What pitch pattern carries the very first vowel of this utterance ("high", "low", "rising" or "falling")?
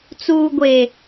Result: low